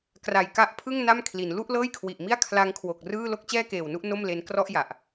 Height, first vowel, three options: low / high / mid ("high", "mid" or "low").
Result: low